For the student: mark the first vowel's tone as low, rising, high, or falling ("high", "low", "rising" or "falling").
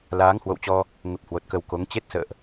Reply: rising